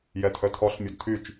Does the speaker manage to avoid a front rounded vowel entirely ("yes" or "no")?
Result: no